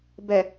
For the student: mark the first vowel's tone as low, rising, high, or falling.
low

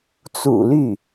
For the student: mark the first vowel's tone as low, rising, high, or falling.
low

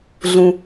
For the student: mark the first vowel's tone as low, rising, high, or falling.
low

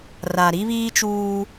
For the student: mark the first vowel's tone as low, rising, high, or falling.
low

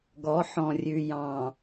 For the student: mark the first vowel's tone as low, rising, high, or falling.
rising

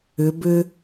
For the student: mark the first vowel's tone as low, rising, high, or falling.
rising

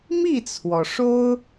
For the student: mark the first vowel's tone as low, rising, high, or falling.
falling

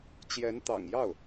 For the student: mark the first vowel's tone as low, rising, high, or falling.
rising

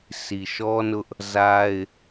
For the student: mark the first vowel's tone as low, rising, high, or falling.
low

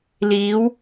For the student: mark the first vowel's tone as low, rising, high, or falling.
rising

